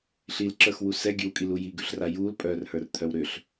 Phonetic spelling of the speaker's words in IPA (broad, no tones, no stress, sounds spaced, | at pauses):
ɬ i l ǁ ə˞ x w u s ɛ ɡʲ ʉ w kʼ i l u j i ɡ ʉ ɬ r a j uː l pʼ œː r h ə˞ r t̪ʰ œ w ɾ ʏ ɬ